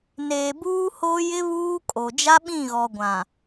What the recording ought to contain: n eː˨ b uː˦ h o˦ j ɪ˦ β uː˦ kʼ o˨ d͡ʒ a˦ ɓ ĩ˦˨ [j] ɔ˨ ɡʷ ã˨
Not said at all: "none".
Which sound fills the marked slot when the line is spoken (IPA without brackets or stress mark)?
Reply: ɣ